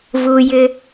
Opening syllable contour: high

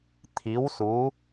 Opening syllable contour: rising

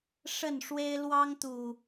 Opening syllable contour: falling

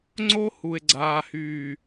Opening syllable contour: high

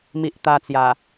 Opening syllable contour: low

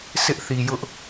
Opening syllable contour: high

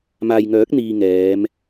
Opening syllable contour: low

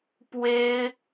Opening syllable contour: high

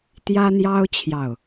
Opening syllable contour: high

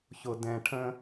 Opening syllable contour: low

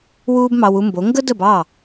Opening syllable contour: high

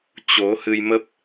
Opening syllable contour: rising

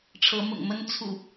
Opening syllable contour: rising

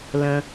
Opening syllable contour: low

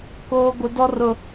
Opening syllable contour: high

